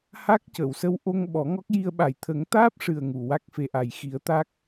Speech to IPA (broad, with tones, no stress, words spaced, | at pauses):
ha˦˥k̚cə˨˩˨wsə˧w ʔo˧ŋ ɓɔ˨˩˦ŋɔ˦˥k̚ji˧ə̯ ɓa˨˩jt̪ʰə˨˩˦ŋt̪aː˦˥p̚ʂɨ˨˩ə̯ ŋu˨˩˨wa˦˥k̚fe˧ʔa˨˩j xi˨˩˦ə̯t̪a˦˥k̚